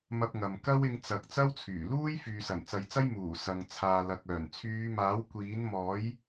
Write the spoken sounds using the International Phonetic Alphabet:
mɐ˧p̚ŋɐ˨m kɐ˥wɪ˧ŋ t͡sɐ˨k̚ t͡sɐ˥wt͡sʰyː˨˩luː˥j fyː˨sɐ˨˩nt͡sɐ˨˧jt͡sɐ˥j muː˨˩sɐ˨ŋ t͡sʰaː˨lɐ˨k̚œː˨˩n t͡sʰyː˨˧maː˨˥w kʷiː˨˥nmɔː˨˥j

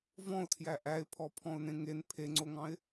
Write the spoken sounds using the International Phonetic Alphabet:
vɔ̃ʊ̯tʰjæ ʔæɪ̯pʰɔpʰɔ̃ʊ̯nẽ ŋen pʰeŋ͡ǀoŋɑ̃ɪ̯

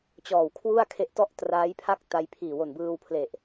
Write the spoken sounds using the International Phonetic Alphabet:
t͡ɕɔː˨˩wkʰwu˥˩a̯ kʰe˦˥ʔtɔ˥˩ʔtraː˦˥jpʰa˥˩k̚ ta˧jpʰiː˨˩ wo˨˩nbɯː˧wpʰle˨˩ʔ

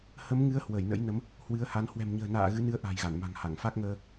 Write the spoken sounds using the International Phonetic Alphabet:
hə˨˦mŋɨ˨˦ə̯hwə˧˩j nə̰˧˥jnə˨˦m | hwɨ˨˦ə̯ha˨˦n hwɛ̤˨˩mɲə̤ː˨˩na̰ː˧˨ ɣɨ˨˦ nɨ˧ə̯ʔa̤˨˩j ɣa˧˩nma̤˨˩ŋha˧˩ŋ fa˦˥k̚ŋəː˧

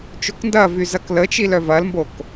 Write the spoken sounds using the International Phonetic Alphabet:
t͡ʃokndɐvy zɐklət͡ʃil œvɐlmbok

